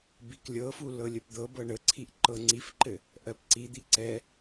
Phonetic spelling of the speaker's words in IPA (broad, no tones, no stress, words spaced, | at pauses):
biklʲɤfu lɤlʲəpd̪ɤbɤ ɳəǀʰiʔ ǃɤŋ͡ǀifǃɘ | ʔɜpǀid̪i ǀɛ